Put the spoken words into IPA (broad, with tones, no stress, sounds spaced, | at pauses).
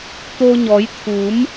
t̪ o˧ ɲ ɔ˨˦ j t̪ʰ u˨˦ m